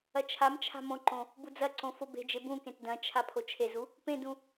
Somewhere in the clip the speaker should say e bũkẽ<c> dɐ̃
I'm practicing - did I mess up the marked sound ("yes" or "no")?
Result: yes